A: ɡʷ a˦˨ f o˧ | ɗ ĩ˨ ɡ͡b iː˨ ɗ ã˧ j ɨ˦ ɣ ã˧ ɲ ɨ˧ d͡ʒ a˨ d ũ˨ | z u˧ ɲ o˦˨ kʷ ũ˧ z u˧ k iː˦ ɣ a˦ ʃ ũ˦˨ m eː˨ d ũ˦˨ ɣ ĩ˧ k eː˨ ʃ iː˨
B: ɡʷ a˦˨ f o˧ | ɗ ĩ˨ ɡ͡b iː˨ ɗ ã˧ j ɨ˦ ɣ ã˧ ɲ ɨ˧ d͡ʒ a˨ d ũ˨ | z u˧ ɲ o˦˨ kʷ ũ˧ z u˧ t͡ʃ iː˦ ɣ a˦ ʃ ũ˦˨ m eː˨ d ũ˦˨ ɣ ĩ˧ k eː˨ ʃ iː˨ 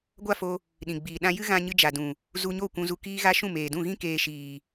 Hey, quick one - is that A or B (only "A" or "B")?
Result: A